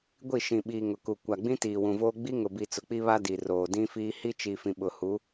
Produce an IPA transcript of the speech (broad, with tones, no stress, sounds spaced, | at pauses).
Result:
ɡʷ i˦˨ ʃ ĩ˨ ɓ iː˨ ŋ ʊ˨ k u˨ kʷ a˨ ɡ͡b ĩ˦ t iː˨ w ũ˨ v oː˦ ɡ͡b i˦ ŋ ʊ˨ b i˨ t͡s ʊ˨ k͡p i˦ β a˦ d i˨ r oː˨ d ĩ˦ f iː˦ h i˦ t͡ʃ i˨ f ĩ˨ ɓ ʊ˨ h u˨˦